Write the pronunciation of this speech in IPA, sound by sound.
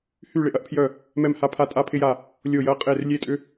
h y˥˨ ɭ ɪ˥˨ ʔ ɐ˥ ʔ pʰ j œ˥˨ | m ɛ˥˨ m h a˥˨ pʰ a˥˨ tʼ a˥ pʰ ɪ˥ j a˥˨ | lʲ o˥˨ j ɐ˥ qʼ e˥˨ r lʲ e˥ tʼ ʏ˥

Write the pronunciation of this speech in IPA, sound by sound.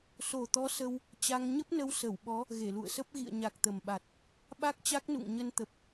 s o˨˩ t̪ ɔ˨˦ s ə˧ w | t͡ɕ a˧ ŋ ɲ ə˦˥ p̚ n ə˧ w s ə˧˩ w ɓ ɔ˨˦ | ɣ e˧˩ l ṵ˧˨ ə̯ s ə˦˥ p̚ ɣ ḭ˧˨ ə̯ ɲ a˨˩ k̚ t̪ ə˨˩ m ɓ a˨˩ t̚ | ɓ a˦˥ k̚ t͡ɕ a˦˥ k̚ n ṵ˧˨ ŋ ɲ ə˧ n t̪ ə˨˩ p̚

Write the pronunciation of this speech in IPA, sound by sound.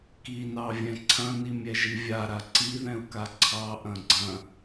k i n ɑ vʲ ɛ̃ ǀʰ ɐ̃ n i mʲ ɛ ʒ i vʲ a ɾ a ǀ i ð ɛ̃ u̯ k a ǀʰ ɑ ʔ ɐ̃ ɡ͡ǀ ɐ̃

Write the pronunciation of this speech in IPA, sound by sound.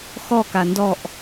x ɔ k a n d ɔ ʔ

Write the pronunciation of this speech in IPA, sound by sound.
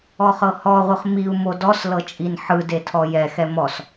ɔ χ ɤ h ɔ ʁʷ ɯ χ m i u̯ m o d ɔ s l ɤ t͡ʃʼ i n ħ ɯ d e tʰ ɔ j ɛ x ɛ m ɔ s

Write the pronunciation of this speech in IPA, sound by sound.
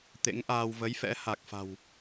t̪ ḛ˧˥ ŋ ʔ aː˧ w v ə˨˦ j f ɛ̰˧˥ h a˨˩ k̚ f a̤˨˩ w

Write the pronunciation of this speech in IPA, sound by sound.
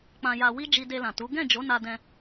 k͡p ã˧ j a˧ w i˦ d͡ʒ i˧ d e˧ l ã˨ t u˨˦ ɡ ɛ̃˦˨ d͡ʒ o˨˦ n a˧ d ɛ̃˧

